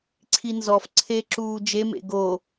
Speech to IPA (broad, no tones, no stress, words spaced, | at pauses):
ǀʰinzɔf ǀʰeǁuː d͡ʒemḛ ɡo